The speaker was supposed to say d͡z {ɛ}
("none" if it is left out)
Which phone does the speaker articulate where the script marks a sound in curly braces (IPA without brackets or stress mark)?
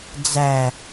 æ